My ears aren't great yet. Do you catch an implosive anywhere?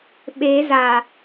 yes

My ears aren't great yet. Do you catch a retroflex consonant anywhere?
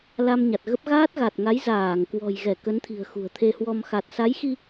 no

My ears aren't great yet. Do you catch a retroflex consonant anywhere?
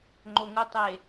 no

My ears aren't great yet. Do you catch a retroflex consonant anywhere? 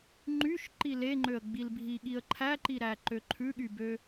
no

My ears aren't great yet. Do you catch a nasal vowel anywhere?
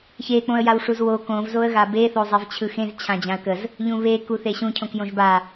yes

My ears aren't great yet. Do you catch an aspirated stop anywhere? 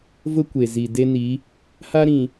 no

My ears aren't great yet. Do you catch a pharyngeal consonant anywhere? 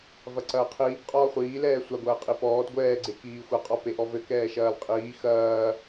no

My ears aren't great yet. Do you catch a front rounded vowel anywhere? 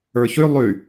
yes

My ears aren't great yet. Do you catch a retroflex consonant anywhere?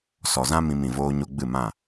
no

